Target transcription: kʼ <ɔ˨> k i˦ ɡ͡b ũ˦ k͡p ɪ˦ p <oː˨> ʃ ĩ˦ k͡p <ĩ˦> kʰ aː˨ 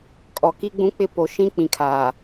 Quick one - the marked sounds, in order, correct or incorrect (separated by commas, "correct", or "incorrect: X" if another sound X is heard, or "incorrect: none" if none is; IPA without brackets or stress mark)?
correct, incorrect: o˨, incorrect: ĩ˨